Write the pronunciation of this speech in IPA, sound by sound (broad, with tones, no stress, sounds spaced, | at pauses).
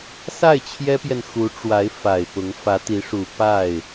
s a˥˩ ɪ̯ t͡ɕʰ j ɛ˥ p j ɛ˨ n x u˧˥ ʈ͡ʂ w a˧˥ ɪ̯ f a˨˩ ɪ̯ p ʊ˧˥ ŋ f ä˧˥ t̪ i˧˥ ʂ u˨˩ p a˥˩ ɪ̯